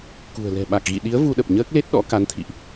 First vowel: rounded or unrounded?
rounded